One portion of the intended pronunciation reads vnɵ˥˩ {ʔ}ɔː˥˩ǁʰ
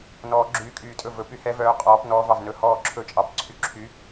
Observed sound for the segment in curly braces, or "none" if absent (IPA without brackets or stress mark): h